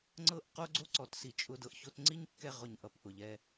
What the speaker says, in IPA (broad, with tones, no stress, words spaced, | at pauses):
ŋ͡ǀɤ˦˨ʔqo˦ɡ͡ǀo˦ ǀɔ˨tsi˨t͡ʃʼʊ˧ dɤ˨ʔço˧tŋ͡ǀi˦ɲkːɛ˧ ʁʊ˨ɲ ʔʌ˨pʔʊ˨ʎɛ˧